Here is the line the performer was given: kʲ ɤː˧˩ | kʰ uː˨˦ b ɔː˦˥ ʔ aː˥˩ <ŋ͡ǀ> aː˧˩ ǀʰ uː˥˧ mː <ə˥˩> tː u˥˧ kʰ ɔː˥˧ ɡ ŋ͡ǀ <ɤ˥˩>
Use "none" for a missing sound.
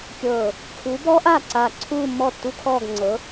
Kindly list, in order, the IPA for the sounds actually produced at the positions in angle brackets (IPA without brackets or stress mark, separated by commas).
ǀ, ɔ˥˩, ɤ˨˦